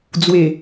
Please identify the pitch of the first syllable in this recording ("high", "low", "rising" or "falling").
low